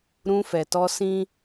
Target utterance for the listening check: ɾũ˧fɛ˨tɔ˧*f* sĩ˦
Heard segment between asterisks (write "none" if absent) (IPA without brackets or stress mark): none